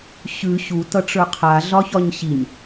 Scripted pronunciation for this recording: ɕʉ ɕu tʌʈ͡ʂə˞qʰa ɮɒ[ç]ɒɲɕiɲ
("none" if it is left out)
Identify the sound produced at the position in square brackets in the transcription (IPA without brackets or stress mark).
ç